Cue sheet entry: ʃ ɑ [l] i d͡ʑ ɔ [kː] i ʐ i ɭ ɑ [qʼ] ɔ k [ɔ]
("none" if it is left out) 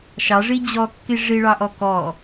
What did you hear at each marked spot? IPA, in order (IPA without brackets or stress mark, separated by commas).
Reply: ʐ, kː, ʔ, ɔ